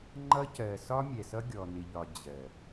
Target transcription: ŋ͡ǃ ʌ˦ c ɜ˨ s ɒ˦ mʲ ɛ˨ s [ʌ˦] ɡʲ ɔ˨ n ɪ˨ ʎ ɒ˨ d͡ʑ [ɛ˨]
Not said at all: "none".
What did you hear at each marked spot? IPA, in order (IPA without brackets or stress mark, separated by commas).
ʌ˦, ɜ˨